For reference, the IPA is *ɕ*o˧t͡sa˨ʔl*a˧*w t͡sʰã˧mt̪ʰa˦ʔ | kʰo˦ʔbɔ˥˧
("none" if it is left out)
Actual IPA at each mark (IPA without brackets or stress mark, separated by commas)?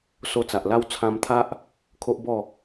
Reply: s, a˦